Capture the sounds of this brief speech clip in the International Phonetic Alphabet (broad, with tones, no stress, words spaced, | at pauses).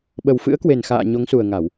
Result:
ɓə˨˩wfɨ̰˧˥ə̯kwe˨˩n xa̰ː˧˨ ɲo˨˦ŋsu˨˩ə̯ŋa˧˩˨w